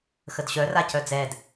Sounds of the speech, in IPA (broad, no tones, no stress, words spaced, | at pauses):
xədɕœ racœd͡zɛd